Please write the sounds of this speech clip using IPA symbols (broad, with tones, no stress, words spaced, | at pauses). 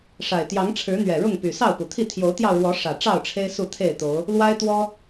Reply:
ʂa˨˩ɪ̯ t̪jɑ˨˦ŋʈ͡ʂʰɻ̩˨˦ n̪ɥɛ˨˩ɻʊ˥˨ŋpy˨˩ sɑ˥˨ʊ̯pu˨˩t̪ʰi˥˨ t̪ʰjo˨˦ʊ̯t̪jɑ˧ʊ̯ɻwɔ˨˦ ʂä˨˩ ʈ͡ʂɑ˥˨ʊ̯ʈ͡ʂʰe˦ɪ̯ su˥˨t̪ʰe˥˨ɪ̯t̪o˨˦ʊ̯ | lwa˦ɪ̯t̪wɔ˦